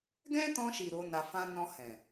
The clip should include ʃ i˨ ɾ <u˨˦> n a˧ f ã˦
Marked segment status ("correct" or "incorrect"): incorrect